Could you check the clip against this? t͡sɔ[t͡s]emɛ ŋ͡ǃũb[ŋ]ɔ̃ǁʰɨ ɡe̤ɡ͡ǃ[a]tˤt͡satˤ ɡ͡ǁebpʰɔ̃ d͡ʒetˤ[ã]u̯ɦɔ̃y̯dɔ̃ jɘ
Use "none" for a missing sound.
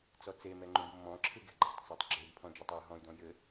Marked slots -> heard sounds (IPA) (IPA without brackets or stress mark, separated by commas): t͡s, mː, a̤, a